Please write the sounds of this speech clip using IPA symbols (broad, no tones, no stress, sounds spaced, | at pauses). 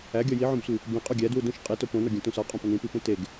æ ɡʲ ɒ j i ʕ õ b sʷ i | b ĩ qʼ u ɡʲ æ d w u d ũ ʃ qʼ i t o p õ n ɒ ɡʲ ũ t ũ s ɒ qʼ õ p ɒ n ĩ p i p ũ t e ɡ